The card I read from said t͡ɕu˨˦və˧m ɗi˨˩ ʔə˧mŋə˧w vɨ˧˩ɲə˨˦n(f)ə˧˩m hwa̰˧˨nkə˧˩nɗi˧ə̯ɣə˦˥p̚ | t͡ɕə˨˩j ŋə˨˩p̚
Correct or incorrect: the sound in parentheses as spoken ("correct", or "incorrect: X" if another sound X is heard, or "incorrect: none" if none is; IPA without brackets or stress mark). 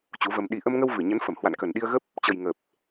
correct